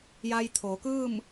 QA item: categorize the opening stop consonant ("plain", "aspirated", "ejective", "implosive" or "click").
aspirated